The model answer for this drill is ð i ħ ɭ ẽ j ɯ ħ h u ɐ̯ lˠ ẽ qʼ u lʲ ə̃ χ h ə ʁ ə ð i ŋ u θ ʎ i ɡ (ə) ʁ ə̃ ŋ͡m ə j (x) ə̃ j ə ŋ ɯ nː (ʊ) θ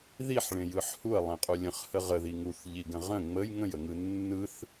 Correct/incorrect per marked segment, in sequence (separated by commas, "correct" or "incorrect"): incorrect, incorrect, incorrect